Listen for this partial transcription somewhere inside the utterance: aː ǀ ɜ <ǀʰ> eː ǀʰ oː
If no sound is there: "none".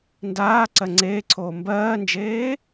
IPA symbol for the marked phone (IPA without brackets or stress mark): ŋ͡ǀ